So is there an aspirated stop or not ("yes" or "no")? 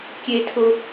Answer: yes